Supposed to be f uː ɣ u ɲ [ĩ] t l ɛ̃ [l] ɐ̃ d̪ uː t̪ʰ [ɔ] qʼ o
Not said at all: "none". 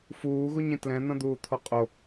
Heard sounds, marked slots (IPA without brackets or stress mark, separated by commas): ĩ, n̪, ɔ